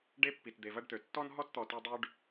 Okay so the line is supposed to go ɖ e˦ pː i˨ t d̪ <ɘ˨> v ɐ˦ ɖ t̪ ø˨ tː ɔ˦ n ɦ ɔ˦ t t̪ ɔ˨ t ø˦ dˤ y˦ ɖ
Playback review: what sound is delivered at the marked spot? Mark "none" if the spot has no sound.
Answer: e˨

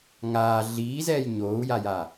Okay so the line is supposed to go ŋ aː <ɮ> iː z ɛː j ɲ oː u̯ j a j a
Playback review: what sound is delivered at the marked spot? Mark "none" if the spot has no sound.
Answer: ɮ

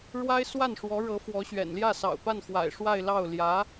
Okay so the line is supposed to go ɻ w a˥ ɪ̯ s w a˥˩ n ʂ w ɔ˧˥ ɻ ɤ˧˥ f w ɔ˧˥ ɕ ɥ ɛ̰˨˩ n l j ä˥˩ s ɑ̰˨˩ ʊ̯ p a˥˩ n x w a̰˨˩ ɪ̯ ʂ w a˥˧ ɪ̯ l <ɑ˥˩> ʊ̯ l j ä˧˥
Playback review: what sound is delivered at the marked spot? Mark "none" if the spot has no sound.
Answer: ɑ˥˩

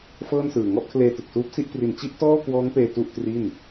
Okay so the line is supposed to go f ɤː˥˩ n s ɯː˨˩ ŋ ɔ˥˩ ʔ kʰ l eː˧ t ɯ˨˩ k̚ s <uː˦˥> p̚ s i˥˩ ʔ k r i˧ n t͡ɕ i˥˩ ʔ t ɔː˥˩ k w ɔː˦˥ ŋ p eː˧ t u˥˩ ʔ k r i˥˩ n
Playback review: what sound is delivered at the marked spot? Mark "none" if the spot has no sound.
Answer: uː˦˥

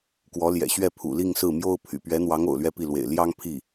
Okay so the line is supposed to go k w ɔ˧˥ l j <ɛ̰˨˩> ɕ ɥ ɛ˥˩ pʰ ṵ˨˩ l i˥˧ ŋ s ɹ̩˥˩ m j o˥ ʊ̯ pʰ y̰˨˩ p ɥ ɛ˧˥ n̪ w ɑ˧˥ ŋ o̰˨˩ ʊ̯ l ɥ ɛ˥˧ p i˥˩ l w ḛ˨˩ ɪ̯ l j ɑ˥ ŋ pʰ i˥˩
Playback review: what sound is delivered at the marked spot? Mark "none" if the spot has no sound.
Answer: ɛ̰˨˩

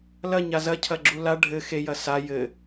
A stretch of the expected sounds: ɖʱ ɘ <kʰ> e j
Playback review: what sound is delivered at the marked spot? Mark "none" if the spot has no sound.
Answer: x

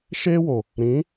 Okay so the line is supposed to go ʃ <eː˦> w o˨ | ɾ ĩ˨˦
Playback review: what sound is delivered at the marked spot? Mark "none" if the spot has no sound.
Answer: eː˦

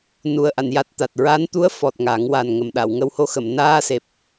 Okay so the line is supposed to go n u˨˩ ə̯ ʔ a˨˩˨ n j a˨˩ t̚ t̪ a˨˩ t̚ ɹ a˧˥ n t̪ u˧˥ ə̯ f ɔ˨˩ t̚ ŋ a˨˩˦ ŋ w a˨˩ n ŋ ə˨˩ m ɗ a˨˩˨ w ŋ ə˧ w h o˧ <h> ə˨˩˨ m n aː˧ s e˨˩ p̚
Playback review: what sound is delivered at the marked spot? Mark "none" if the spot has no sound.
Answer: x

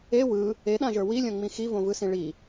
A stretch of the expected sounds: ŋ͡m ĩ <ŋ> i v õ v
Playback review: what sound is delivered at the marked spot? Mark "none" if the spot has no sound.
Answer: x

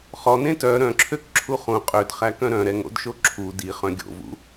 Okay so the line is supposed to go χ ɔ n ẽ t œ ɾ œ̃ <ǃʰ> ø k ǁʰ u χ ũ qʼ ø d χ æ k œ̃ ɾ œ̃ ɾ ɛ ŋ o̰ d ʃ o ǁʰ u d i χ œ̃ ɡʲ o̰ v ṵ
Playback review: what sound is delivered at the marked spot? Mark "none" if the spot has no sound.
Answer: ǁʰ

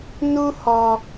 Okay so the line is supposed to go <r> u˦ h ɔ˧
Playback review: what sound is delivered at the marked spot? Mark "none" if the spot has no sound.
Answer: n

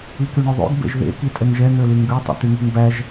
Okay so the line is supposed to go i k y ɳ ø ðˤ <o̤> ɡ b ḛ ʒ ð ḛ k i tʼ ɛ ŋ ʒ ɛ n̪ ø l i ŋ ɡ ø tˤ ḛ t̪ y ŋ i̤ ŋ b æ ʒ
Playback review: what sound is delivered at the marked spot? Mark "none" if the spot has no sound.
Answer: o̰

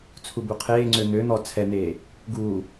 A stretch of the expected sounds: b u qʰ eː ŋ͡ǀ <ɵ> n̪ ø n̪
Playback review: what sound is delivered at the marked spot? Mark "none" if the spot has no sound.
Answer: ø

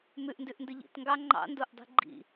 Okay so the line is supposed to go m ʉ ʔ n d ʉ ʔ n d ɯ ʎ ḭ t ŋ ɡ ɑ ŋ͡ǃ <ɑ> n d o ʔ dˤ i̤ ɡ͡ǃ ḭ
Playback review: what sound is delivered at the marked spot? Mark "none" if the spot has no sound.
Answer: ɑ̰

